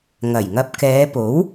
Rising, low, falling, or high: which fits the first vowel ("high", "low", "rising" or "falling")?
low